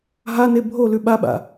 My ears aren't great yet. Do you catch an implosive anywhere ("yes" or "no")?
yes